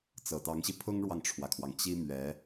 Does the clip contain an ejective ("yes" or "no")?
no